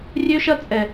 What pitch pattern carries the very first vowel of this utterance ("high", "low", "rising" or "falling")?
high